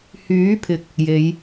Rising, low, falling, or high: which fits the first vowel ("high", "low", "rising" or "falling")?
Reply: rising